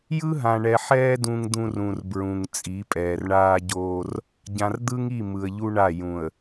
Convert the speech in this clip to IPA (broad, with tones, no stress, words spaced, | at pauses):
jɯ˦ɦã˨ɳɛ˨ħɛː˦ dũ˦ŋd̪ũ˦rũ˨r bɹũ˨ŋt͡sʼi˨˦pʼɛː˨r ɳaː˦ɟoː˦r | ɟã˨rd̪ɯ˦ŋi˦˨ mɯ˨ə̯ʎu˦ɳa˦˨ jũ˨ə̯